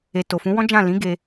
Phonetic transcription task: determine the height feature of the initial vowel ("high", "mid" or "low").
mid